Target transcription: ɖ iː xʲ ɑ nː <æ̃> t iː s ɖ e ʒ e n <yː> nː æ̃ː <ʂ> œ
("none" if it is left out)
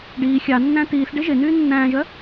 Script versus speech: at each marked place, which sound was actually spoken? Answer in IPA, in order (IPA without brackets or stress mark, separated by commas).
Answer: æ̃, yː, ʒ